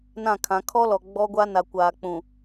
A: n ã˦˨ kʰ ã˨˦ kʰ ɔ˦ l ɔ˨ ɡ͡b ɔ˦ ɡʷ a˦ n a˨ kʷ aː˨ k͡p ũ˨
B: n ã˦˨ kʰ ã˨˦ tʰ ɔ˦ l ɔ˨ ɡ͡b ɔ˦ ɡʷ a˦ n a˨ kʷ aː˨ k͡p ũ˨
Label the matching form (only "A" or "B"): A